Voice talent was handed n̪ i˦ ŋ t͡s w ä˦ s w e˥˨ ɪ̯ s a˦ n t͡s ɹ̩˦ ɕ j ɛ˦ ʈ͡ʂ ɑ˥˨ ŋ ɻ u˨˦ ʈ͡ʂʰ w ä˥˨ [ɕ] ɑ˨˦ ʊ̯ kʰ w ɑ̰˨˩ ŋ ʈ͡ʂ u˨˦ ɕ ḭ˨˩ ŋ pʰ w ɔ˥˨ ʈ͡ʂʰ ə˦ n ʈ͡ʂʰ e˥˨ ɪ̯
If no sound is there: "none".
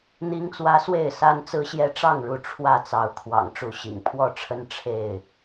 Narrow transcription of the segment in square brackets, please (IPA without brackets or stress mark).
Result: t͡s